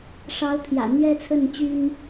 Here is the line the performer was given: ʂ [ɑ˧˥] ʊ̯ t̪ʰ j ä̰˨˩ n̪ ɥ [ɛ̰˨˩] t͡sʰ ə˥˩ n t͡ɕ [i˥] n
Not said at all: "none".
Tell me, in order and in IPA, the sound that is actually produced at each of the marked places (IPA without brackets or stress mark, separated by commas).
ɑ˧˥, ɛ˥, y˥